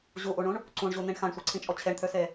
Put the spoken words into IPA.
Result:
ʑ u ʔ u ɳ ũ ɳ | ǀ ũ ɳ ʑ u n̪ ĩ ɳ x ã ɳ sʷ e ǀʰ ĩ t͡ʃʼ ɔ t͡ɕʰ e ɳ t̪ʰ ø s e

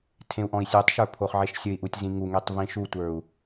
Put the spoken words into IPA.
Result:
tʰ ẽ u̯ ʔ ɔ̃ i̯ sʲ e tˤ ʃ ə˞ pʰ o χ ʕ e ʃ sʲ ɵ i̯ ʔ u tʲ z ĩ ŋ u ŋ e tˤ v ĩ ʃ u tʷ ə˞ u̯

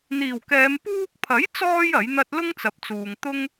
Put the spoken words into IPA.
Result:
n̪ iː˨˩ w k ɛː˨˧ m p uː˧ k̚ pʰ ɐ˨˥ j t͡s ɔː˧ j ɐ˨˥ j n̪ ɐ˥ t̚ l ʊ˥ ŋ t͡s ɐ˨˥ p̚ t͡s uː˨ ŋ t̪ ʊ˥ ŋ

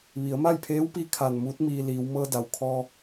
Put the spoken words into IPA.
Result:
ʋ i˩˧ ə̯ m a˥˨ j pʰ eː˧˥ w p i˧ kʰ a˧˩ n m uː˧˥ t̚ m iː˧ l iː˩˧ w m ɤː˧ d a˩ w kʰ ɔː˧

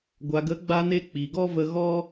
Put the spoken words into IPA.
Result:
ɡʷ a˨ ɡ ə˨˦ ɡ͡b a˧ n e˧ k͡p i˨ ɡ ɔ˦ v ə˧ ɣ ɔ˦

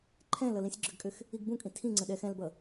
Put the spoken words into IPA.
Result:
ǃʰ ɛ̃ l ʌ l ĩ sʲ ɡ͡ǁ ʏ ɡ kʼ ʏ x | i ɡ b ũ kʼ ĩ tʰ ĩ ŋ͡ǀ ə̃ ɗ ɛ x ɛ̃ l b ʌ

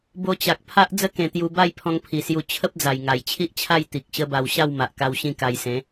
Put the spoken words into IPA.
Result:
b o˧ t͡ɕ a˨ k̚ pʰ a˦ ʔ d͡z ə˦ k ẽ˨˩ t̪ j u˧ b a˥˧ j pʰ ɔ̃˧ ŋ pʰ i˨˩ s j u˧ t͡ɕʰ ə˦ p̚ d͡z a˨˩ j ŋ a˨˩ j t͡ɕʰ i˦ ʔ t͡ɕʰ a˥˧ j t̪ i˨ k̚ ɕ ə˦ b a˧ w ɕ a˥˧ w m a˨ ʔ k a˧ w ɕ ĩ˥˧ k a˧ j s ẽ˨˦

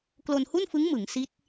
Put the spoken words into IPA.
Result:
k l o˧ n h u˥˩ n f ɯ˦˥ ŋ m ɯ˩˦ ŋ s i˦˥ t̚

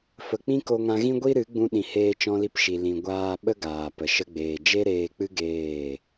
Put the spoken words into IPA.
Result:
f ə˨ k͡p ĩ˦ k o˧ ŋ ã˧ ɣ ĩ˦ ɡʷ i˦ ɾ ɨ˨˦ ɡ͡b ũ˧ ɗ ĩ˨ h eː˧ t͡ʃ ɔ̃˧ l i˧ p ʃ i˨ l ĩ˨ ɡʷ aː˧ ɓ ə˦ ɡ aː˨ p ə˨ ʃ ə˧ ɡ͡b eː˨ d͡ʒ e˦ ɾ eː˧ k͡p ɨ˦ ɡ eː˦˨

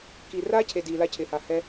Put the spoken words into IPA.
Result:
k i˨ r aː˦ cʰ e˨ d iː˨ l a˧ cʰ ɪː˨ h a˨ h ɛ˧

